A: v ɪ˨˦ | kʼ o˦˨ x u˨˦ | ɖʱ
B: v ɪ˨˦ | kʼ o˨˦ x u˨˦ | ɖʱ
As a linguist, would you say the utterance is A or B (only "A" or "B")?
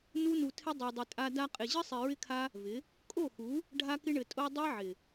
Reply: A